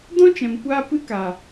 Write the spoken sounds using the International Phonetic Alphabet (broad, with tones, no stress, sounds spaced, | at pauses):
d ɔ̃˦ t͡ʃ ɛ̃˨ m kʷ aː˧ p ɨ˦ k a˨